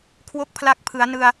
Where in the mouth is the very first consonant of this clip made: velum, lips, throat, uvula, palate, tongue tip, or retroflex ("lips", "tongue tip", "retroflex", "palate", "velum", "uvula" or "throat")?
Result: velum